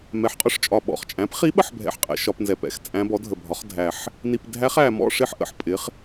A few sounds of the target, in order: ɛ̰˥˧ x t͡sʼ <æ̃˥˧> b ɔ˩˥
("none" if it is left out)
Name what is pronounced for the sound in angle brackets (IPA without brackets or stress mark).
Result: æ̃˧˥